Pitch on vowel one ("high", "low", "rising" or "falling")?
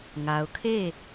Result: low